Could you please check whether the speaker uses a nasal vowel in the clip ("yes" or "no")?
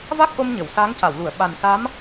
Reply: no